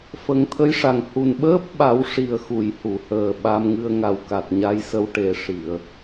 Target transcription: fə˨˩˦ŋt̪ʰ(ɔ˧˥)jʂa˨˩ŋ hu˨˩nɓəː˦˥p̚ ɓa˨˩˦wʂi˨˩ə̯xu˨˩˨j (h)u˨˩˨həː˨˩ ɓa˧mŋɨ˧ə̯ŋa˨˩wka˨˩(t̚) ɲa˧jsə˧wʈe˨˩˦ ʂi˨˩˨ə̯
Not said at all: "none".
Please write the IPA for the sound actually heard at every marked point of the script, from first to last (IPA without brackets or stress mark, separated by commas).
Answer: ə˧˥, h, t̚